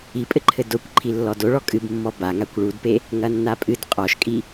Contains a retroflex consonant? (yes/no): yes